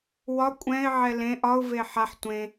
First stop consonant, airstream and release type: ejective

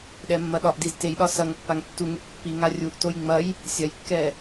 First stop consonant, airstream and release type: implosive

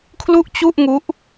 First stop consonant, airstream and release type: aspirated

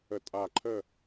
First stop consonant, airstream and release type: ejective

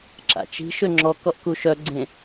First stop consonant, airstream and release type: click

